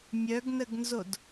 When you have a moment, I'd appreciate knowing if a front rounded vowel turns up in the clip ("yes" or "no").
yes